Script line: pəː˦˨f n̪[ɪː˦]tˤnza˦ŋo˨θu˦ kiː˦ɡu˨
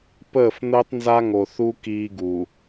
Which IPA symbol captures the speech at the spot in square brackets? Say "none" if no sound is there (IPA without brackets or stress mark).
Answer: əː˦